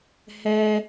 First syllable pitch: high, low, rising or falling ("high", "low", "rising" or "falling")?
high